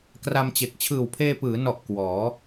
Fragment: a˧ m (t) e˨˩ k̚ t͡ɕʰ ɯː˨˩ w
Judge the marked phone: incorrect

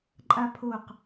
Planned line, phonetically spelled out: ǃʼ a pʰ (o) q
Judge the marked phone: correct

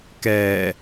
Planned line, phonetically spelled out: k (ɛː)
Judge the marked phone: correct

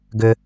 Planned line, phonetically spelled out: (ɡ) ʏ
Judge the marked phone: correct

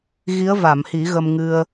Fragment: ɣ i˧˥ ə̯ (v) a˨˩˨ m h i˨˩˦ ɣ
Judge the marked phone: correct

